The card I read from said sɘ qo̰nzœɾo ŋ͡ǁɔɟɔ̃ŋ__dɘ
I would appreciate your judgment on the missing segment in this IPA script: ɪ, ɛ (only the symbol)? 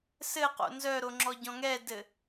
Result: ɛ